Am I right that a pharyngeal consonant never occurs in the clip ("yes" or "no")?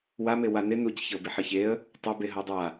no